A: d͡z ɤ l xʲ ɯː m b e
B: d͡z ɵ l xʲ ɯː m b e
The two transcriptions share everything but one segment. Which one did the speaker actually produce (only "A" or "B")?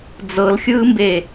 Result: A